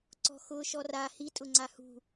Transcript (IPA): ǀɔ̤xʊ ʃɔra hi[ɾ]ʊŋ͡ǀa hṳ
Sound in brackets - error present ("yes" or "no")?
yes